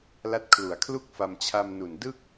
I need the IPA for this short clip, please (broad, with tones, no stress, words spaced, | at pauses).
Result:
la˦˥t̚kʰlu˨˩a̯kʰlu˥˩k̚fa˧m t͡ɕʰa˧mnu˨˩n dɯ˥˩k̚